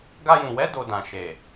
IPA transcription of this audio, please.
ɡ a˧ j ũ˨ w ɛ˨˦ d o˧ d ã˨ ʃ e˨

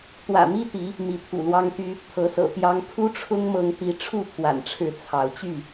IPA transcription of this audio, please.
t̪ w ä̰˨˩ m i˦ t̪ i˨˦ | m i˨˦ t̪ʰ ṵ˨˩ l w ɑ˦ ŋ t̪ y˦ | pʰ ɤ˨˦ s ɤ̰˨˩ t̪ j ɑ˦ ŋ pʰ u˦ ʈ͡ʂʰ ʊ˦ ŋ m ɤ˦ ŋ t̪ i˦ ʈ͡ʂʰ u˥˨ pʰ w a̰˨˩ n ʈ͡ʂʰ ɻ̩˥˨ t͡sʰ ɑ˨˦ ʊ̯ t͡ɕ y˥˨

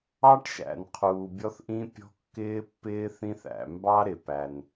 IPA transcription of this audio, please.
ɑ˥ ʈ ʃ æ̰˩ n qʰ uː˩ bʲ ɔ˥ θ ʔ ĩ˥ pʲ ɔ̤˥ kː ɪː˥ pː ɪː˥ θ ĩ˥ θ æ̰˩ m b ɑ˥ ɾ ɪ˩ p æ˩ n

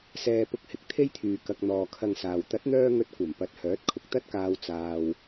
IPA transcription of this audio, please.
s ɛː˧ p ʊ˧ k̚ h ɪ˨˥ k̚ t̪ʰ e˥ j t̪ʰ yː˨ k ɐ˧ k̚ n̪ ɔː˨ kʰ ɐ˧ ŋ s aː˨ w t̪ ɐ˨˥ t̚ n̪ œː˧ ŋ ɵ˧ t̚ kʷ ɐ˨˩ m p ɐ˨ t̚ h œː˨˥ t̚ kʰ ʊ˨ k̚ t̪ ɐ˥ t̚ k aː˧ w t͡s aː˧ w

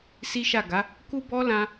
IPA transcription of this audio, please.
s i˦ ʃ a˦˨ ɡ a˨˦ | k u˦ b ɔ˦ l ã˧

